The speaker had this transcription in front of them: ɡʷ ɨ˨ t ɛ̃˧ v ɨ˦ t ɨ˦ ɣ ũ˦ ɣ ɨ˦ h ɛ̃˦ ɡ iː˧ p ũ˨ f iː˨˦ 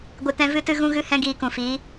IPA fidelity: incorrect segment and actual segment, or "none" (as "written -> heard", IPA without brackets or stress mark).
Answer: p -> k